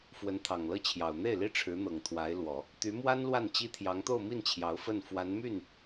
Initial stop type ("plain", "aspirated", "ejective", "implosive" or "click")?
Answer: aspirated